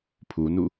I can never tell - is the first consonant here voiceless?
yes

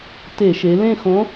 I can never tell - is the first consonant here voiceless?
yes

